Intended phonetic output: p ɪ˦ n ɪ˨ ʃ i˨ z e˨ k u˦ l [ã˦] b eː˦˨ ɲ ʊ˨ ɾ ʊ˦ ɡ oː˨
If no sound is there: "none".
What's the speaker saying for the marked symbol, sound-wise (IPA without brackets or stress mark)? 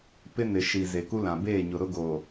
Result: ã˨